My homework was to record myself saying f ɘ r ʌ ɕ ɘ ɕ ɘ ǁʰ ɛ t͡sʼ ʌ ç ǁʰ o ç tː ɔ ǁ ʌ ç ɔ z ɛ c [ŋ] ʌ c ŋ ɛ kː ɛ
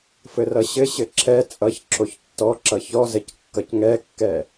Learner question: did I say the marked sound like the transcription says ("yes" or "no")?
no